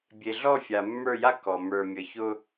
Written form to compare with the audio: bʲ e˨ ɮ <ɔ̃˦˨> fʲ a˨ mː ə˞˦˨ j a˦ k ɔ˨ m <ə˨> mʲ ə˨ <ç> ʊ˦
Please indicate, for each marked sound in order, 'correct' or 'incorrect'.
incorrect: ɔ˦˨, incorrect: ə˞˨, correct

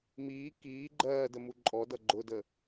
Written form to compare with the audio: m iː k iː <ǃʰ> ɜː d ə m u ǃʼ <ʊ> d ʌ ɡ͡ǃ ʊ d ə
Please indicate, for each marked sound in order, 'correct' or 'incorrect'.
incorrect: ɡ͡ǃ, incorrect: ɔ

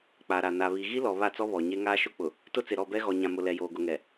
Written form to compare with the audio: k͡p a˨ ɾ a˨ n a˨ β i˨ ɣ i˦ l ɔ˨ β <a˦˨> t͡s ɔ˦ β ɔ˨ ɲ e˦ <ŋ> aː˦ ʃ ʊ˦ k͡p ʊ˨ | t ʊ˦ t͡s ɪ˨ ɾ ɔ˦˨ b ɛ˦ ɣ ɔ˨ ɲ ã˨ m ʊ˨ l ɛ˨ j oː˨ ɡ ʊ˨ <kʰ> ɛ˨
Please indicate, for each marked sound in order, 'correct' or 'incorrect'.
correct, correct, incorrect: ŋ

